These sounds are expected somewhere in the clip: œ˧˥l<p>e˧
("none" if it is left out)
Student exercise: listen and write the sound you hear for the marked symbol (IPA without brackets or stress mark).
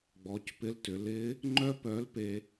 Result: p